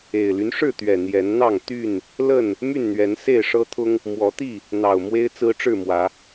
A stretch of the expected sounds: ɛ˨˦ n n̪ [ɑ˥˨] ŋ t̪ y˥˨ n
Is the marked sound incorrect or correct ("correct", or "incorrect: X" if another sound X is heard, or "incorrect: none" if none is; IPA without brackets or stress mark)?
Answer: correct